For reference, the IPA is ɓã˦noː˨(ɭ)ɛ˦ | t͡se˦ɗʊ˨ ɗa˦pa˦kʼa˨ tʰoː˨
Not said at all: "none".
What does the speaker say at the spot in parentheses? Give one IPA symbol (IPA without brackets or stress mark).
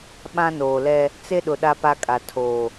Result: l